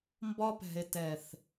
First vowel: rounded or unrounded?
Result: rounded